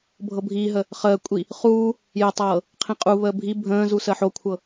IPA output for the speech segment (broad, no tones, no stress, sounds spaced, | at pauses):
bʱ ɤ bʱ iː ɦ ə | χ əː kʷʼ i | χ uː | j ə tˤ ɤː | qʰ ĩ qʼ u β əː bʱ i bʱ ə̃ː z u s ə ħ o kʷʰ ɤ